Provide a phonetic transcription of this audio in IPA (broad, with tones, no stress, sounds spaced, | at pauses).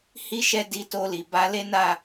h i˦ ʃ ɛ˦ d i˧ t o˧ l i˨ b a˧ l e˦ n a˦˨